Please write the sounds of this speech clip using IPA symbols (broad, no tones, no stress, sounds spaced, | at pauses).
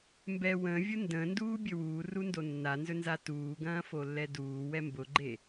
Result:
m b ɛ w ə̃ː vʲ ʊ n d ə̃ː n d uː bʲ ɵ w uː r u n d o nː a n z ɵ n z a t uː ɡ ɐ̃ː f o lː ɛ d uː w ɛ m b ʊ ɡ͡ǃ e